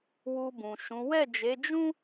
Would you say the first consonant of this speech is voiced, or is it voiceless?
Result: voiced